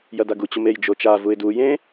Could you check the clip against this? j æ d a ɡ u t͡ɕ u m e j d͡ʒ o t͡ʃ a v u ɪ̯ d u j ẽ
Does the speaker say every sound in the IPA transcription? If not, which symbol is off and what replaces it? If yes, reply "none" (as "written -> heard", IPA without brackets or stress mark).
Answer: æ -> ɐ